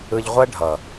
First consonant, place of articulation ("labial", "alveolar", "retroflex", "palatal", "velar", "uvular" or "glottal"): palatal